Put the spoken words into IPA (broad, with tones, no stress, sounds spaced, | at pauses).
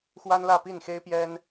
x w a˥ n l ä˥˧ p i˥˩ n x e˥ ɪ̯ p j ɛ˥ n